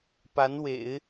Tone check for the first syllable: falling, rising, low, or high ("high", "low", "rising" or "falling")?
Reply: rising